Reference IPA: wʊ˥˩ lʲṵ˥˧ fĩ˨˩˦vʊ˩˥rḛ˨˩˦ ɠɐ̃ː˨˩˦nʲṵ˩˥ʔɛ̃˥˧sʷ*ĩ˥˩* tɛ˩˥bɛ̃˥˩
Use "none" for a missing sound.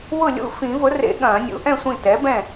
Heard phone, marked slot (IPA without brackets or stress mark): ĩ˥˩